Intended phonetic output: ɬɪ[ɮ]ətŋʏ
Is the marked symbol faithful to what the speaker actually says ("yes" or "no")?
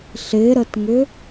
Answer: no